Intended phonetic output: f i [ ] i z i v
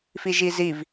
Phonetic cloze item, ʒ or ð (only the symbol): ʒ